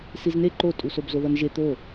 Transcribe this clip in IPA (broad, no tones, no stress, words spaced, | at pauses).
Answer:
sizne ǃotʼusob zoðʌnʒe t̪o